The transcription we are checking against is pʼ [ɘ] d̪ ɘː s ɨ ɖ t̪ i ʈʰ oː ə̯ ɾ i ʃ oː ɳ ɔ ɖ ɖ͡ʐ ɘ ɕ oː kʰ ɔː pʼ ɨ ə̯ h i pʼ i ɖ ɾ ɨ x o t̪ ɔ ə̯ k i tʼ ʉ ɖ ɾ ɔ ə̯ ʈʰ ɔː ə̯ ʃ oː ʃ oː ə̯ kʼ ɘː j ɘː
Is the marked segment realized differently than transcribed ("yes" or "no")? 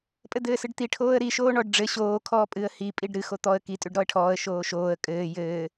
no